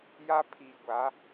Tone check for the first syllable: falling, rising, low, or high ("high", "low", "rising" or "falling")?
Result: high